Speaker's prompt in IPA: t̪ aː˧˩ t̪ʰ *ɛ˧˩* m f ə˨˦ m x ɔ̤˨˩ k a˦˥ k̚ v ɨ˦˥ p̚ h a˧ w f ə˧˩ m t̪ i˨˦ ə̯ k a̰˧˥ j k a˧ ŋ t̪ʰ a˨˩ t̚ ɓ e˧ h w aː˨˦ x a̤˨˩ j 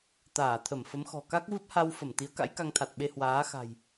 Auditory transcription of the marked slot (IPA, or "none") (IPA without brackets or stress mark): ə˧˩